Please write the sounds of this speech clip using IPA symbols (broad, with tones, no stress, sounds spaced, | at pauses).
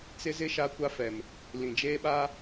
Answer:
t͡s ɪ˦ z ɪ˦ ʃ a˦ kʷ a˦ f ɛ˨ m | l ĩ˨ d͡ʒ eː˦ ɓ a˦